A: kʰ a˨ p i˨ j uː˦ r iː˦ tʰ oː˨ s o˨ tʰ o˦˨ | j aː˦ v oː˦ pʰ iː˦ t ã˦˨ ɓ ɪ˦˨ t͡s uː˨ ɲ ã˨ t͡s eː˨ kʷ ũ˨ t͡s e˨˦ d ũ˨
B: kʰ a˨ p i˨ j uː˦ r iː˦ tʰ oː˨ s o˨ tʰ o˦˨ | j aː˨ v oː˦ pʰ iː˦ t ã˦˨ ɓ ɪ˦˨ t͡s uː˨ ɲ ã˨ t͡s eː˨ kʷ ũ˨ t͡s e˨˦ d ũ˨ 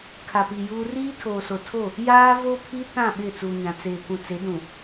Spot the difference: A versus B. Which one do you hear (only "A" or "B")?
A